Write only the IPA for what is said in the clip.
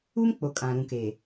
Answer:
uː˦mk͡po˨ kʼã˨ɾũ˨ keː˨

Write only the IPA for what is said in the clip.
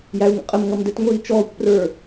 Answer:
jæu̯ŋə̰qʼəmŋʌm dɛtŋʷiːt͡ʃɔːkʷprə˞

